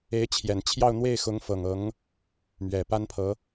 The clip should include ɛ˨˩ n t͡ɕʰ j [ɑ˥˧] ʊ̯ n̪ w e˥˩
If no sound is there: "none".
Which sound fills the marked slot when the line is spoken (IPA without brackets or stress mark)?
ɑ˥˧